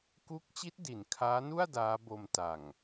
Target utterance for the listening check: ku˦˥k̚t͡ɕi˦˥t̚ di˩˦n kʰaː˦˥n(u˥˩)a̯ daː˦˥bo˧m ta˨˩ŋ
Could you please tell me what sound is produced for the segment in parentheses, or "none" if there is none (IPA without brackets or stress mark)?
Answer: u˥˩